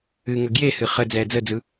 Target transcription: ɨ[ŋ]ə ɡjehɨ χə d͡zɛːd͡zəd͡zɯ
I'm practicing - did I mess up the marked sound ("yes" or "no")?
no